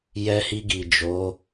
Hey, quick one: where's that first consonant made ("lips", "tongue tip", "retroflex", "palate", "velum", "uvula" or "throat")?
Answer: palate